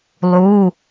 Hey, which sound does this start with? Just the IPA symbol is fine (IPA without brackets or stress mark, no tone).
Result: lˠ